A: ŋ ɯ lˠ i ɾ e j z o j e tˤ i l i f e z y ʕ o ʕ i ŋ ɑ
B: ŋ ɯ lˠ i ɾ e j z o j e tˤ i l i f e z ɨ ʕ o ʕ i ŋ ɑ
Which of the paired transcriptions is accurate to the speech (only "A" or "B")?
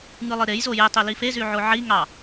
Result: A